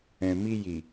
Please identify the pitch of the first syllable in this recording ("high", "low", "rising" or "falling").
low